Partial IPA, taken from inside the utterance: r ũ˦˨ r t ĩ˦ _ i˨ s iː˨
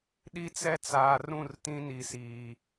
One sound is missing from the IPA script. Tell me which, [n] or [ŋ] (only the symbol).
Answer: n